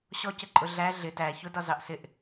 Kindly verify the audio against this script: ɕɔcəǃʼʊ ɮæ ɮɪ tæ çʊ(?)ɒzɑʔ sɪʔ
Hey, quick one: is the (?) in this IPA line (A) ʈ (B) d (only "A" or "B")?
B